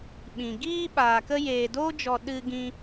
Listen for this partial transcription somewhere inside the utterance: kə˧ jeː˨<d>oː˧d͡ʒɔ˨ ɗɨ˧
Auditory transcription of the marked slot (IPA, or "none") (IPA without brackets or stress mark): d